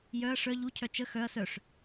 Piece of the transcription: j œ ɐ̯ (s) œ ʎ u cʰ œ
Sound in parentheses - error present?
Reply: yes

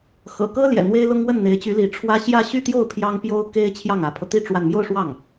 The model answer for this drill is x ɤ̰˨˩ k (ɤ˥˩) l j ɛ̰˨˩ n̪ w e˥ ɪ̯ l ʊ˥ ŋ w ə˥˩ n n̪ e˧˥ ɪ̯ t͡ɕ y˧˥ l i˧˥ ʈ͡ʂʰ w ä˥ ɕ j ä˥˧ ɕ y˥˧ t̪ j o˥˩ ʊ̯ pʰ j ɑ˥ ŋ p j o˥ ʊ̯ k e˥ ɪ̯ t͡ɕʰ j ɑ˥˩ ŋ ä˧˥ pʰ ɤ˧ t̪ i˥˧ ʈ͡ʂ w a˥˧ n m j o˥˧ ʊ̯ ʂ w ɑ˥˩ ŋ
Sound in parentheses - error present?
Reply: yes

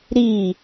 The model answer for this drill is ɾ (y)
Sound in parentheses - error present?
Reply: yes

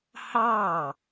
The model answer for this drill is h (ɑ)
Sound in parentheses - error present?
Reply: no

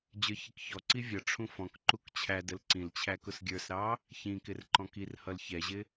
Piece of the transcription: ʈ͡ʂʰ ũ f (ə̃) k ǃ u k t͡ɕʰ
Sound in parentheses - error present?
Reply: yes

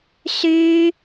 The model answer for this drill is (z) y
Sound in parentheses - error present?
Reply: yes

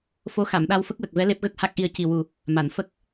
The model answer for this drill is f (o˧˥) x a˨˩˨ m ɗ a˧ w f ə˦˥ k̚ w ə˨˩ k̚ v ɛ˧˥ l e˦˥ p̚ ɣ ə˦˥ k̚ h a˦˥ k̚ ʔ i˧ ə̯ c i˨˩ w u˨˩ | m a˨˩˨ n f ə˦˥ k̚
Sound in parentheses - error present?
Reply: no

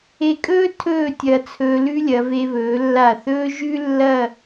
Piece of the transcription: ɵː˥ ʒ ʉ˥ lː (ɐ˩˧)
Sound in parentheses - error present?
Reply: yes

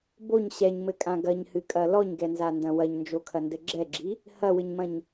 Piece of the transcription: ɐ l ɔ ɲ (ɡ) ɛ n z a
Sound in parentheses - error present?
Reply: no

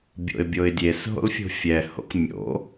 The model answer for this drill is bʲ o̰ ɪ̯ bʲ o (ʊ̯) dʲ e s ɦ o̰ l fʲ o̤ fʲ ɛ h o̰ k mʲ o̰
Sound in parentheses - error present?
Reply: yes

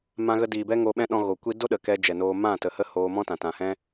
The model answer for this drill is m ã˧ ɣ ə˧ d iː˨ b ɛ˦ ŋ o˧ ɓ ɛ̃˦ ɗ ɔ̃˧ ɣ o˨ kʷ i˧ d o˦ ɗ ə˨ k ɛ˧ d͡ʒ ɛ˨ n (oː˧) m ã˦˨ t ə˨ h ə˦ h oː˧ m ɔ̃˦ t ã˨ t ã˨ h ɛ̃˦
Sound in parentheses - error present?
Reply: no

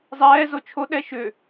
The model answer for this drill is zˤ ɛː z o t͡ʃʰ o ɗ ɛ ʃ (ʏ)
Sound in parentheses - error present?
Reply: no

